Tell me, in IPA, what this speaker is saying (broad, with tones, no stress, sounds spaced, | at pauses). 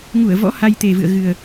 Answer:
ŋ u˧˩ ə̯ v ɔ̰˧˥ h a˧ j t̪ e˨˩ v ɨ̰˧˨ ə̯ ɣ ɨ˨˩ ə̯